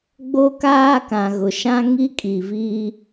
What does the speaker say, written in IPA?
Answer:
ɡ͡b o˦ k aː˦ k ã˨ ɣ ʊ˨ ʃ ã˦ ŋ i˦ kʼ i˨ v iː˦

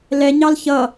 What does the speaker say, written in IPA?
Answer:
l ɛ ɲ ɑ l ç ʌ

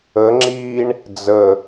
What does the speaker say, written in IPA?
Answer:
ə ŋ͡ǁ iː ɳ | d͡z ə

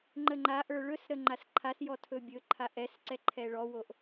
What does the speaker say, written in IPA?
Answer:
ŋ͡ǃ ə ŋ͡ǃ a ʔ ə˞ ɭ ɵ s ɾ ə ŋ͡ǃ a s ǃʰ a s j ɔ tʰ ɵ bʲ ɵ ǃʰ a ʔ ɛ s ǀ ɛ ǃʰ ɛ ɭ ɔ w o ʔ

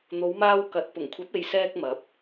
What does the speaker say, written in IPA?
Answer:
n̪ o˨˧ w m aː˧ w k ɐ˨˥ t̚ p ʊ˨˩ ŋ kʷʰ ɐ˨˥ p̚ e˨ j s ɛː˧ k̚ m ɐ˨˥ p̚

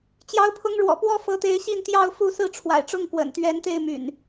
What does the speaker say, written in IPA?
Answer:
t͡ɕ j ɑ˨˦ ʊ̯ pʰ ʊ˨˦ ŋ ɻ w ɔ̰˨˩ p w ɔ˦ f ɤ˨˦ t̪ e˨˦ ɪ̯ ɕ i˥˨ n t̪ j ɑ˥˨ ʊ̯ f u˥˨ s ɹ̩˥˨ ʈ͡ʂʰ w a̰˨˩ ɪ̯ ʈ͡ʂ ʊ˥˨ ŋ k w ə̰˨˩ n t̪ ɥ ɛ˨˦ n t̪ e˥˨ ɪ̯ m y̰˨˩ n

